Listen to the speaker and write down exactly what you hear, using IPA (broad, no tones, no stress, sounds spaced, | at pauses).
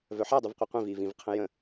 v œ ħ a dˤ u v qʷ i qʷ ĩ v iː v ĩ v qʰ ə̃ j ə̃